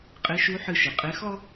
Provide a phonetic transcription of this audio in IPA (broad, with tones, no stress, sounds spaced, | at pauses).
qʼ e˧˥ ʃ u˧˥ ħ ɨ˧ ʃ ɨ˩ qʼ e˧˥ x ɔ˥